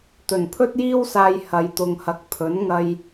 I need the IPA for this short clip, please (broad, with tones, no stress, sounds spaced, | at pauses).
t̪ ɵ˨˩ n pʰ ɵ˥ t̚ j iː˥ w s aː˧ j h ɐ˧ j t̪ ʊ˧ ŋ h ɐ˧ k̚ pʰ ɵ˨˥ n ŋ ɐ˧ j